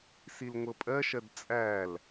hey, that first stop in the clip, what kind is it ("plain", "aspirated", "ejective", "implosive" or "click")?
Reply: ejective